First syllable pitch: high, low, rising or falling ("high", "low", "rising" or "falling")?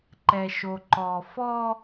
low